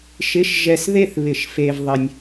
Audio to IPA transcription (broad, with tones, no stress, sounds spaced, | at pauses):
ʃ ɪ˧˥˧ ʃ ʒ ɛ˧ s ð e˥˨ θ β ɪ˧˩˧ ʃ f e˧ v ðˤ ɪ˧ nʲ